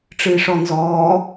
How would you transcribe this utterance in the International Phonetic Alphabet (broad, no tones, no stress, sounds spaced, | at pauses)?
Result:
ʈ͡ʂ ɨ i̯ ʂ ɔ n z ɔː